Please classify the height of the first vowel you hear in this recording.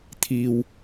high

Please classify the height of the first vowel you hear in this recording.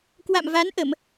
low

